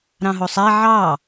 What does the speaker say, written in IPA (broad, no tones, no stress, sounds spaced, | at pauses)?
ɾ ɑ̃ ɦ o sˤ æ ʕ ɑ